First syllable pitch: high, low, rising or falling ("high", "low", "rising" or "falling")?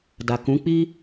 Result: low